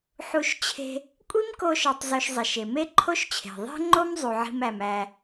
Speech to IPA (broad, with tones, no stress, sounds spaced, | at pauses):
ħ u˧ ʃ t͡ɕʰ e̤˧ | kʷʼ i˥ m k o˧ ʃ ɒ˧ tˤ z o˧ ʃ zˤ e˩ ʃ e˩ m e˥ ǃʰ o˥ ʃ t͡ɕʰ e̤˩ ðˤ e̤˥ ŋ͡ǃ o˥ m zˤ u˩ ʕ i̤˧ m æ˩ m æ˩